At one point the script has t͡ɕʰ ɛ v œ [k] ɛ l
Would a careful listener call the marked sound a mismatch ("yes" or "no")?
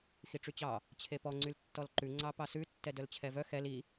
yes